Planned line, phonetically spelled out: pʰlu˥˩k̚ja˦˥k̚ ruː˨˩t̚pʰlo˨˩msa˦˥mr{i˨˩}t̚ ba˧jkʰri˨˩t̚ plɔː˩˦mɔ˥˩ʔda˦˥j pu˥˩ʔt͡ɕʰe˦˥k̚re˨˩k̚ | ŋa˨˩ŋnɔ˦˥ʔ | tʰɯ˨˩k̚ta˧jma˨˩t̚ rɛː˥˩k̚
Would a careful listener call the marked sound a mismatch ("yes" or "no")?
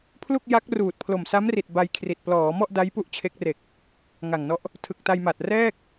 no